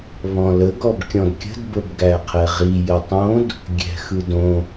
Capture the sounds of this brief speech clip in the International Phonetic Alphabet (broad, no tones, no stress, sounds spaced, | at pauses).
β ɔ̃ l ə ɡ ɔ b kʲ ɔ̃ d kʲ ə̤ d b ə b ɡ æ qʰ ɛ ʁ i j ə tˤ õ d | ɡʲ ɛ̤ x ɯ d õ